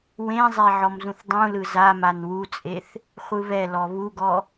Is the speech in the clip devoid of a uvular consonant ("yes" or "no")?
no